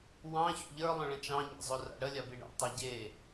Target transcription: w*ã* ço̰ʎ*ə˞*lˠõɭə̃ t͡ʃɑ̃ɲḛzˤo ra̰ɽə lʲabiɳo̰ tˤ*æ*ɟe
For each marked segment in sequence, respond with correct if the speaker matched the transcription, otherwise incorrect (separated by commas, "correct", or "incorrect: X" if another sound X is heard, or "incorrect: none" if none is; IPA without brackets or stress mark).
incorrect: ɑ̃, correct, incorrect: œ